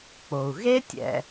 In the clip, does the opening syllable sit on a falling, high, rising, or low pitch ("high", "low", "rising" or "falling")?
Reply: low